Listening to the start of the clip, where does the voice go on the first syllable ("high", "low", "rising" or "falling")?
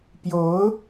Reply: rising